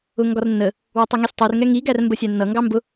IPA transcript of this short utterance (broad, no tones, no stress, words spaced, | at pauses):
ʊŋɡɒrnːə | wʊtˤuŋɛsʲtˤur ŋɛŋi ɡærmbəsʲænːʌ ŋɡɑmbʊ